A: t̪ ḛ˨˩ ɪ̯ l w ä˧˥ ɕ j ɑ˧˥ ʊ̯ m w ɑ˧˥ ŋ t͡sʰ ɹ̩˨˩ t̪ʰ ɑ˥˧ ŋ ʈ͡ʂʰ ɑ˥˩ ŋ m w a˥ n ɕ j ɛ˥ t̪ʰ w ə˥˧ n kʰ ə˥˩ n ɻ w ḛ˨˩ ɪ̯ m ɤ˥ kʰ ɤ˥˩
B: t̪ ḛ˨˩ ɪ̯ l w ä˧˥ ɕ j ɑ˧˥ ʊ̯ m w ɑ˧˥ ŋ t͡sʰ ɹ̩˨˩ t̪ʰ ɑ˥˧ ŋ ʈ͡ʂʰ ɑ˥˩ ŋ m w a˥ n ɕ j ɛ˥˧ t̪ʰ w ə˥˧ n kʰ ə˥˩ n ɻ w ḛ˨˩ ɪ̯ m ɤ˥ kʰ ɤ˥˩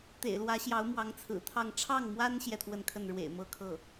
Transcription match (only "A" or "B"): B